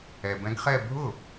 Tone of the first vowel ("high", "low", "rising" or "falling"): low